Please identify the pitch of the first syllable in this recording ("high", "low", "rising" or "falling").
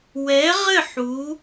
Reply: rising